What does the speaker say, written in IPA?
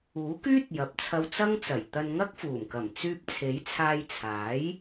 uː˨˥ k yː˥ t̚ j ɐ˨˥ p̚ t͡sʰ ɐ˧ w t͡s ɐ˥ ŋ t͡s ɐ˨˩ j t̪ ɐ˧ n ŋ ɐ˥ k̚ f uː˨˩ m k ɐ˨˩ m t͡s yː˧ p̚ t͡sʰ e˨˥ j t͡sʰ aː˧ j t͡sʰ aː˨˥ j

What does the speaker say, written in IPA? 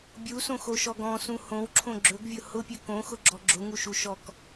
bʲ u s õ x o ʃ ɔ ɡ ɔ̃ s ũ h õ w ǁʰ õ ɡ͡ǁ ɵ ɡ vʲ ʊ h ʊ pʲ ɵ k õ x ʊ ɡ͡ǁ ɔ ɡ͡ǁ ʊ ŋ u ʃ u ʃ ɔ k

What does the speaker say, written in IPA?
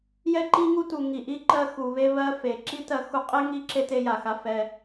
j ɛ˧ ǃ i˧ ŋ u˧ t u˩ ŋ i˩ ʔ i˧ ǃ ɜ˧ x u˩ β e˧ β ɜ˧ f e˩ ǁ i˥ t ɜ˧ x u˧ qʼ e˥ ŋ i˥ ǁ e˥ t e˧ j a˩ x a˧ f ɛ˧

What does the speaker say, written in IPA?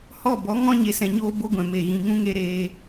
h ɔ˦˨ b ɔ˨˦ ŋ ɔ̃˦ ɲ e˨ s ɛ̃˨ ɲ oː˧ b o˦ ɡʷ ɛ̃˨ m e˨ ɣ ĩ˨ ŋ ũ˦ ŋ e˦ ɾ eː˧

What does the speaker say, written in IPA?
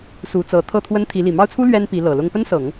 s u˧˥ t͡s ɤ˧˥ t̪ʰ ɤ˥˩ t̪ʰ w ə˥ n t̪ʰ i˧˥ l i˨˩ m ɑ˥˩ ʊ̯ t͡sʰ u˥ l ɥ ɛ˥ n p i˧˥ l ɤ˨˩ l ʊ˥ ŋ p ə˥ n s ɤ˨˩˦ ŋ

